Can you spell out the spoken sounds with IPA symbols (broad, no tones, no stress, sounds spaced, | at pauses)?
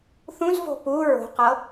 θ ũ z v o̤ p u ɹ o̤ q ɤ